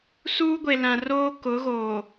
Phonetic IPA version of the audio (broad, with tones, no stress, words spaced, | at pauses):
suː˦ɡʷe˨lã˨ roː˦ kʊ˨˦ɣoː˨